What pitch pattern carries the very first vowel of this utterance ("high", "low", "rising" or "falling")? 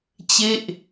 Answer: falling